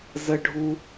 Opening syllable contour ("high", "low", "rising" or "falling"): low